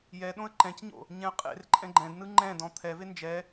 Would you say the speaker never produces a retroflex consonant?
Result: yes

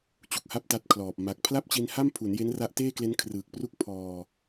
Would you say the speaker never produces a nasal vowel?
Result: yes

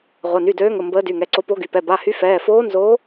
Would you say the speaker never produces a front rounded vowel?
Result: no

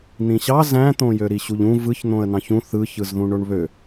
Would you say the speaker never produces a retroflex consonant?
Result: no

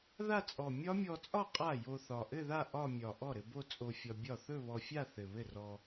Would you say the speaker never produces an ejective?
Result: no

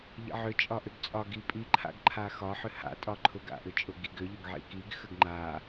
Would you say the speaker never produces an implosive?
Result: yes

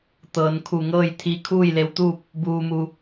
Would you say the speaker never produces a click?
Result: yes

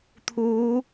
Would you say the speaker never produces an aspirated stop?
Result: no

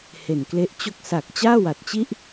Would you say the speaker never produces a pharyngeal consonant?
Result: yes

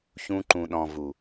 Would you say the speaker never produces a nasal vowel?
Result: no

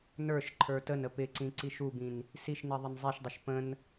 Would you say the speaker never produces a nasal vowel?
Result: no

